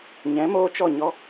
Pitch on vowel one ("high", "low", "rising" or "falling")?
rising